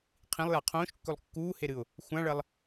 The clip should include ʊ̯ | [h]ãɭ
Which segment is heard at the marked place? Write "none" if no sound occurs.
xʷ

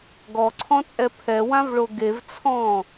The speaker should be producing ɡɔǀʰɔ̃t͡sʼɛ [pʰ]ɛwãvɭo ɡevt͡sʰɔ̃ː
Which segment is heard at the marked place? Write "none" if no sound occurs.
pʰ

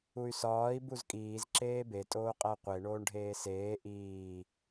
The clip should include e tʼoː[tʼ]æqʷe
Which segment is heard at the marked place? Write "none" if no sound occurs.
qʼ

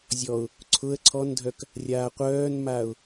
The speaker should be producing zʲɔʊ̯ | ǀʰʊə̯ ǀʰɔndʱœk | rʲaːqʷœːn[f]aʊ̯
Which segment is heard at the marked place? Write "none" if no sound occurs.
m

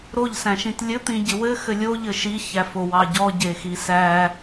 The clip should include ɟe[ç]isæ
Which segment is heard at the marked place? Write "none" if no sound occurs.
x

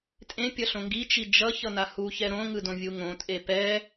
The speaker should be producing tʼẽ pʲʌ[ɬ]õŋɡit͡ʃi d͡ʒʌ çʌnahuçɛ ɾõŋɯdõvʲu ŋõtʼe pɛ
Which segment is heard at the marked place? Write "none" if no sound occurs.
ɬ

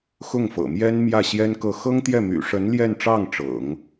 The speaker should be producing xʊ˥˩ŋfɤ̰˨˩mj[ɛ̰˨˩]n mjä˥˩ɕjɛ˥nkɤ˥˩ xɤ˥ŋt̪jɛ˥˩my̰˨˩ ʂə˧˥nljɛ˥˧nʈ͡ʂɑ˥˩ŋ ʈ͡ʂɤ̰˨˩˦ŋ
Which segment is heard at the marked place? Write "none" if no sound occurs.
ɛ˥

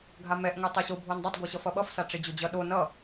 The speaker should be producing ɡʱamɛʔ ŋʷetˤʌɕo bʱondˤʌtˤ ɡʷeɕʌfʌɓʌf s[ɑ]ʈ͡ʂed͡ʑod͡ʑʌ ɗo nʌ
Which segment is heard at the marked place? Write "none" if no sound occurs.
a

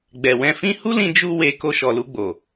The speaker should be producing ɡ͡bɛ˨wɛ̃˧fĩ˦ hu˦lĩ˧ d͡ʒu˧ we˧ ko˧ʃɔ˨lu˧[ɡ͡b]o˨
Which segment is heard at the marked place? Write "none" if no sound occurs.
ɡ͡b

